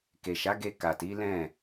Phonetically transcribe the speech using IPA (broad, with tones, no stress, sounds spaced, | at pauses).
k e˨ ʃ a˨˦ ɡ e˧ k a˨ t i˨˦ l ɛ̃˦˨